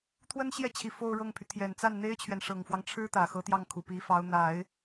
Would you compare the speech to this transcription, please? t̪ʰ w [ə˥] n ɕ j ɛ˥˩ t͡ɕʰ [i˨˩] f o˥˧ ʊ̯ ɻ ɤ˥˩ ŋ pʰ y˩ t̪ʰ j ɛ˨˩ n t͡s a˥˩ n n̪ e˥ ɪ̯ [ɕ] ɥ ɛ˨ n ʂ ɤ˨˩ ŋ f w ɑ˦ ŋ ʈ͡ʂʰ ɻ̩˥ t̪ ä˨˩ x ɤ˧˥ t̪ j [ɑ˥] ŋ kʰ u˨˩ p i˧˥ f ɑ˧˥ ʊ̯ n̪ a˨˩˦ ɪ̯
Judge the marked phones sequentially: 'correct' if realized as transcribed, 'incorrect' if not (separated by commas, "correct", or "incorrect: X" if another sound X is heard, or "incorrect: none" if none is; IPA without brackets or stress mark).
correct, correct, incorrect: t͡ɕʰ, incorrect: ɑ˥˩